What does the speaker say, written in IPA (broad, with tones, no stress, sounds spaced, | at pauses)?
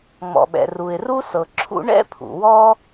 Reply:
ŋ͡m ɔ̰˩ ɓ ɛ̰˩ r u˩ ɪ̯ r u˥ s ɤ˩ ǁʰ ṵ˥ ɳ ɛ̰˥ pʰ ṵ˩ w ɔ˥